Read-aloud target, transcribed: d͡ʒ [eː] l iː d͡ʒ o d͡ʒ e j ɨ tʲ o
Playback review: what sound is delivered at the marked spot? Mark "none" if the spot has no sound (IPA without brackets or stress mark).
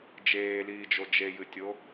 eː